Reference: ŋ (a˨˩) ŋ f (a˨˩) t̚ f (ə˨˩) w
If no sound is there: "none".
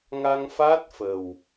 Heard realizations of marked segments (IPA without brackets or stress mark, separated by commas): a˧, a˦˥, ə˨˩